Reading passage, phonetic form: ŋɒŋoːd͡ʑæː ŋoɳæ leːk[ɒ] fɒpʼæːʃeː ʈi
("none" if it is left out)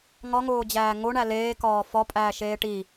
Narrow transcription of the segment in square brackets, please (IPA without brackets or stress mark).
ɒː